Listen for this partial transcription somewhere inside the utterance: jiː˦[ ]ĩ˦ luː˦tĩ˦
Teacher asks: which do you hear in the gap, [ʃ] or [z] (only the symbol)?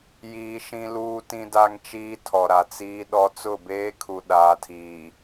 ʃ